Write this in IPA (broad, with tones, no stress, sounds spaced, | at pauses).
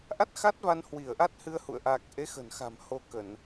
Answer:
ʔ a˦˥ t̚ x a˦˥ t̚ v a˧ n h w i˧˩ ə̯ ʔ a˦˥ t̚ h ɨ˧ ə̯ h ṵ˧˨ ə̯ ʔ a˨˩ k̚ ʔ e˨˦ x ə̤˨˩ n x a̤˨˩ m h o˧ k ə˧˩˨ n